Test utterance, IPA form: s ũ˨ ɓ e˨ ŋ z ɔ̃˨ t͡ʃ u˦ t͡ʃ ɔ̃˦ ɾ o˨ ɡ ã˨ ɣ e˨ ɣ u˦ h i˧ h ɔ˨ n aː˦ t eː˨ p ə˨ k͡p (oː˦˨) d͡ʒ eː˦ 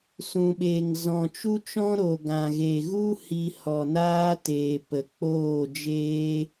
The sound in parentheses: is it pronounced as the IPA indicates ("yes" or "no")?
yes